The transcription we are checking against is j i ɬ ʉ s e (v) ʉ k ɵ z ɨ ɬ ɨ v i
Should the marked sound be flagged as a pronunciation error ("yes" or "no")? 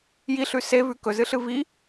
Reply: no